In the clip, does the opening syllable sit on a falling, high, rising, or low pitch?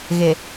low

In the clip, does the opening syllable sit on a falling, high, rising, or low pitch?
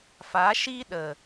rising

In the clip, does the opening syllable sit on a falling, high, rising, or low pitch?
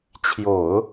low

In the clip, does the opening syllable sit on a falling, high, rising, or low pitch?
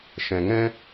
low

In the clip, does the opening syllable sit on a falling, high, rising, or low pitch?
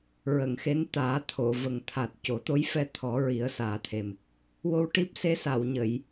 low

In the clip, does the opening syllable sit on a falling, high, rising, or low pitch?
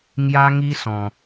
high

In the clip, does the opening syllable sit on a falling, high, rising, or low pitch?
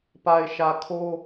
low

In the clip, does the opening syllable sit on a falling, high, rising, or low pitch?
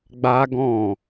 high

